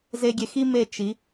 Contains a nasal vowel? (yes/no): no